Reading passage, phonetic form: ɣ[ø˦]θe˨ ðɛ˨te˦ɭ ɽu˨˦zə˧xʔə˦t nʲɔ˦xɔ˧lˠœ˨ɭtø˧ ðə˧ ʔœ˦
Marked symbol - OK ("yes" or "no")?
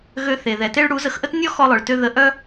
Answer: no